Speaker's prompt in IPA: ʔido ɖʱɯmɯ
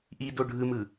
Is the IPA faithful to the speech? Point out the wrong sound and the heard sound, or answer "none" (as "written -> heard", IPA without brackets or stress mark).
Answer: none